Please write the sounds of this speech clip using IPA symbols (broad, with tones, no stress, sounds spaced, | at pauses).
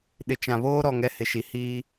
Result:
ɗ ɪ˨ t͡ʃ ã˨ β oː˦ ɾ ɔ˨ ŋ ɛ˦ h ɪ˨ ʃ i˨ h iː˦